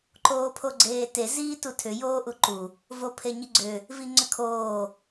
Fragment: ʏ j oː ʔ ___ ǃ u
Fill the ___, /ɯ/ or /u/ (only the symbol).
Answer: u